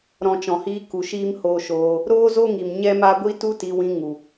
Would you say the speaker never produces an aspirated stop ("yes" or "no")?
yes